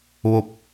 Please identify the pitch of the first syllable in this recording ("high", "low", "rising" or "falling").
falling